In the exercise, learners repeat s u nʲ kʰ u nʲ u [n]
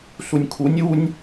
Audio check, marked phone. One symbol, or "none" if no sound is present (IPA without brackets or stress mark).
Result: nʲ